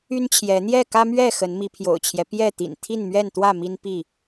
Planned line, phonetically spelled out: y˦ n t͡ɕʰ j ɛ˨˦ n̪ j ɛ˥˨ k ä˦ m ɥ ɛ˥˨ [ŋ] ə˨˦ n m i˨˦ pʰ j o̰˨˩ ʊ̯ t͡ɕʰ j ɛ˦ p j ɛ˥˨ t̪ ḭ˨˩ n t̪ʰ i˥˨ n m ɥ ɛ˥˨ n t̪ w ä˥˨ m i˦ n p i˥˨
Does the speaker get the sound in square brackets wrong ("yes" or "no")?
yes